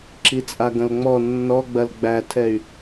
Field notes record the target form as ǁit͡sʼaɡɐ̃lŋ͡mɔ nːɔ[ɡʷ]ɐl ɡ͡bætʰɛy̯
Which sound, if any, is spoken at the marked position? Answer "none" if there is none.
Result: ɡ͡b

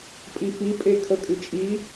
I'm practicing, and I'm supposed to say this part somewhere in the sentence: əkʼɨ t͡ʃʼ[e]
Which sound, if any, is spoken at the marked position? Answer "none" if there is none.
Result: i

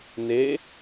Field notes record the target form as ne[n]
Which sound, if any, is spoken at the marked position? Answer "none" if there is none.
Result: none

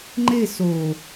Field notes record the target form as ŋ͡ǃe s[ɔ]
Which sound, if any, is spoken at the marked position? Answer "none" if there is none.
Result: o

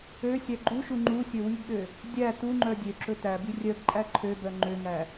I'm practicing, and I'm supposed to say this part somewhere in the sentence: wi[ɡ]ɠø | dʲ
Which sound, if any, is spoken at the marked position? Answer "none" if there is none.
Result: ɡ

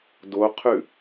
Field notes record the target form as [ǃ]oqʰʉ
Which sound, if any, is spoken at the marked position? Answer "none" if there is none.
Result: d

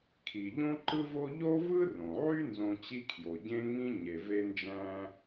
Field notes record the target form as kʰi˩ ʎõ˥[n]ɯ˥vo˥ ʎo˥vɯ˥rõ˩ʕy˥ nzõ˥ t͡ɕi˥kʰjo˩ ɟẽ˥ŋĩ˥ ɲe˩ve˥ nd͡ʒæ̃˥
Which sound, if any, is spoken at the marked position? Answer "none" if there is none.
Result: ǃ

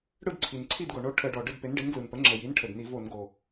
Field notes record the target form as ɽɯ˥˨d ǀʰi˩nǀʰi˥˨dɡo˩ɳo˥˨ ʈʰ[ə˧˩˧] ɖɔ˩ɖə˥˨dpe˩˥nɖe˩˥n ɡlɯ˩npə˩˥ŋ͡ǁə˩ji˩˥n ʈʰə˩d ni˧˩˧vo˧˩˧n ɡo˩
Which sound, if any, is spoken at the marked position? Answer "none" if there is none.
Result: ə˧˩˧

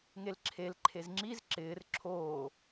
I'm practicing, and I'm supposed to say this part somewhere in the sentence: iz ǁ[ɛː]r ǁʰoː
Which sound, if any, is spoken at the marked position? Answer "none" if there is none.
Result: ɪː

